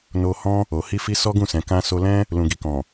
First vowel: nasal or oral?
oral